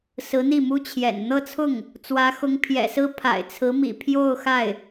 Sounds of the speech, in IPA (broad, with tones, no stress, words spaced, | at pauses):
sɹ̩˧˥n̪i˥˩mu˥t͡ɕʰjɛ̰˨˩n n̪ɤ˥˧t͡sʰʊ˥˩ŋ | t͡swä˧˥xʊ˧˥ŋpʰjɛ̰˨˩sɹ̩˥ pʰa̰˨˩ɪ̯t͡sʰɹ̩˧˥mḭ˨˩ pʰjo˥˧ʊ̯ xa˥˩ɪ̯